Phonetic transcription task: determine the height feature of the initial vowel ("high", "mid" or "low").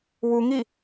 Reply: high